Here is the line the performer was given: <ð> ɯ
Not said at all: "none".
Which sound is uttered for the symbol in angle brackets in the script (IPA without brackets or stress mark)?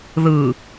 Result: ð